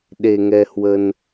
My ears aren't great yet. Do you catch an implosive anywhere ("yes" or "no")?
yes